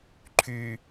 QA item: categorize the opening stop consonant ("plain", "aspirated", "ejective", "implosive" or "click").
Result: click